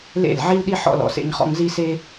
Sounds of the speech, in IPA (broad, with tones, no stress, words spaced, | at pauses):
lḛ˦˨lʕi˦lɗi˦ ħɔ̰˧lɔ̰˨sḛ˧ɲχɔ̰˧ŋ zi˦se˦